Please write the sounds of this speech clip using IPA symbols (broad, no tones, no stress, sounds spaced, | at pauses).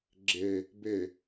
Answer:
ɡ͡ǁ e | b e